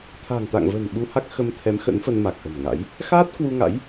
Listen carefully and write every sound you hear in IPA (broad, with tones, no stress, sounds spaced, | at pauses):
t̪ʰ a̤ː˨˩ ŋ t̪ a̰ː˧˨ ŋ v ə̤ː˨˩ n ɓ u˧ h a˦˥ k̚ x ə˧ m t̪ʰ ɛ˨˦ m x ə̰˧˥ n f ə˧ n m a˨˩ k̚ ʔ ə̤˨˩ m ŋ a̰˧˥ j | x aː˦˥ t̚ k w u˧ ŋ a̰˧˥ j